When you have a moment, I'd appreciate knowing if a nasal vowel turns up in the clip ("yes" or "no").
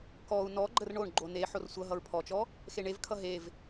no